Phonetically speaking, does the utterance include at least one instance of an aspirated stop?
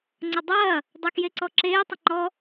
no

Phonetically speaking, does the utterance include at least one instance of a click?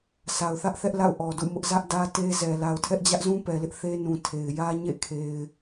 no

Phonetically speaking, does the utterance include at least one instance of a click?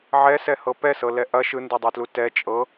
no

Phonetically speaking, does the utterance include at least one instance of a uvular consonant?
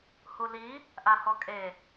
no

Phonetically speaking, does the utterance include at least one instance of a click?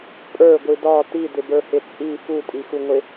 no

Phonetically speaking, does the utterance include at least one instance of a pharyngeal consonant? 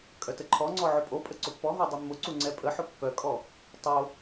yes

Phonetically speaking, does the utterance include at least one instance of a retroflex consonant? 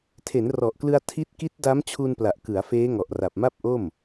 no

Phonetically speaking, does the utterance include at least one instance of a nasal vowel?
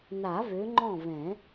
yes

